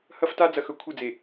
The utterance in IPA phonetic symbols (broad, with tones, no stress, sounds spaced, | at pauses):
h ɐ˦ f t a˦ d͡z ɐ˨ x ɵ˨ kʷʰ ɨ˦˨ d͡z e˨